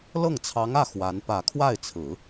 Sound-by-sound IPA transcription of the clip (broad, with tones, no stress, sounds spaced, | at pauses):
l ɤ˥˩ ŋ t͡sʰ ɑ˧˥ ŋ ä˥˩ x w a˧˥ n p ä˨˩ kʰ w a˥˩ ɪ̯ t͡sʰ ɹ̩˨˩˦